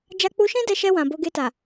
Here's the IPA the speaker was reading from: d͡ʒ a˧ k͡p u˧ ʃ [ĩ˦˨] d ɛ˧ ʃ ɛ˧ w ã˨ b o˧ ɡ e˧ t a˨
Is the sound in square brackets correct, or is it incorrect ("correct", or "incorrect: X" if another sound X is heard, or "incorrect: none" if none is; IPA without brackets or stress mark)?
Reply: incorrect: ĩ˦